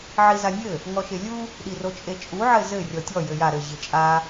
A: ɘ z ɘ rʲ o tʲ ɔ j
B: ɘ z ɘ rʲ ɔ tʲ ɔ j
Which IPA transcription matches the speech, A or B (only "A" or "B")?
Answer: B